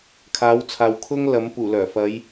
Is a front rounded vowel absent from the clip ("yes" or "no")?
no